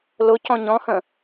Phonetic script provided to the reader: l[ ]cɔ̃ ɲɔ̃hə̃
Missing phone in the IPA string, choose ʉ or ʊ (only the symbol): ʊ